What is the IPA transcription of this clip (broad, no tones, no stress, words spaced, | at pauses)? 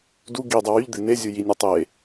du ɡi dˤɛwyʎd̪e nezʲu jinʲe tˤe